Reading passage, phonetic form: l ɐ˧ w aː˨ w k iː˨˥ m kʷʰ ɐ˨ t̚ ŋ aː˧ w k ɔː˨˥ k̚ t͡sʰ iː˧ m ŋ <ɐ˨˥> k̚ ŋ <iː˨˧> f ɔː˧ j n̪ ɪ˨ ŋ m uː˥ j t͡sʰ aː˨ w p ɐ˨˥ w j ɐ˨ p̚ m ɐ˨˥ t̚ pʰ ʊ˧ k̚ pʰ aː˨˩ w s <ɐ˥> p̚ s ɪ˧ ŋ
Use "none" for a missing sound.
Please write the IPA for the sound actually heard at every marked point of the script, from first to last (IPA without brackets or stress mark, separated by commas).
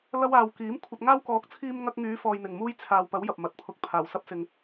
ɐ˧, yː˨˧, ɐ˥